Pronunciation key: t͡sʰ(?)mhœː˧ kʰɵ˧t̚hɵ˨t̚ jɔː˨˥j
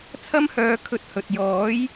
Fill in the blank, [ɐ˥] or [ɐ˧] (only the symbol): ɐ˥